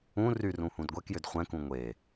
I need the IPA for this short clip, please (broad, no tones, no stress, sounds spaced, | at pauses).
ũ r y r ũ h ũ d ɡʷ ɛ k j ʏ d χʷ ɛ̃ k ũ ŋʷ e